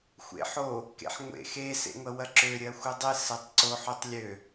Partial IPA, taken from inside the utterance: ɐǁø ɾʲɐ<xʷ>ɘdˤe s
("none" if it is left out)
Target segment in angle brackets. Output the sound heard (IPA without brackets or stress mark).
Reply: xʷ